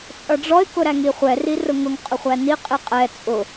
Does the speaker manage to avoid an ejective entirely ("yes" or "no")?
no